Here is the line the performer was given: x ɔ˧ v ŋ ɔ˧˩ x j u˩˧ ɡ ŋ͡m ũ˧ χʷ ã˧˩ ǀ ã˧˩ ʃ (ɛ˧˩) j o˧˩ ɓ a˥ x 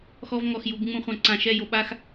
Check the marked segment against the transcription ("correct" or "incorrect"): incorrect